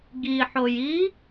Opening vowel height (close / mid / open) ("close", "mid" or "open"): close